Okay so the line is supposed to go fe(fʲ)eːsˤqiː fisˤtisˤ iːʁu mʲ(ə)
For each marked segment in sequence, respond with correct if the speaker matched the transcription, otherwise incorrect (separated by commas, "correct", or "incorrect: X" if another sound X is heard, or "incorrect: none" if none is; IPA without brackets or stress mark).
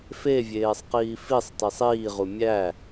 incorrect: vʲ, incorrect: æ